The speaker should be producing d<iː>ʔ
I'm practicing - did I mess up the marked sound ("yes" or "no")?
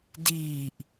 no